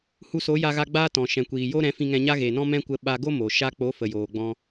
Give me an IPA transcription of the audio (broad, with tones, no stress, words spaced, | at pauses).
hu˧so˨˦ja˧ɣa˧ ɡ͡baː˦tɔ̃˨ ʃɛ̃˨kʷiː˨jo˦ ɾɛ̃˨˦fĩ˧ŋɛ̃˧ɲa˦ ɣe˨nɔ̃˦ mɛ̃˦kʷə˧ ɓa˧ɡo˦ mo˨ ʃa˧k͡po˨˦fə˨ joː˨ɡ͡bɔ̃˧